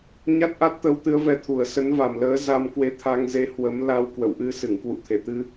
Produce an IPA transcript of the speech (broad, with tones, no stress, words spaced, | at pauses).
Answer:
ɲa˦˥t̚ʔa˦˥t̚t̪ə˨˦w t̪ɨ˨˦ə̯vɛ˧t̪ʰu˨˩ə̯ sə˨˦nva˨˩mləː˨˦ za˧mkwe˧ t̪ʰa˧ŋze˧hwə˨˦mla˧w kwə̰˧˨wʔɨ˧sɨ˧˩ŋ kwṵ˧˨t̪ʰe˧˩t̪ɨ˧